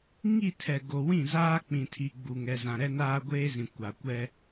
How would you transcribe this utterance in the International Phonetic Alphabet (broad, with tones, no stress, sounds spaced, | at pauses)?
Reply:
ŋ i˦˨ tʰ ɛ˨ ɡ o˨ w ĩ˦˨ z aː˦ k͡p ĩ˨ tʰ i˨ ɡ͡b u˨ ŋ ɛ˨ z ã˨ ɾ ɛ˦ n aː˦ ɡʷ eː˦ z ĩ˨ kʷ a˨ kʷ ɛ˦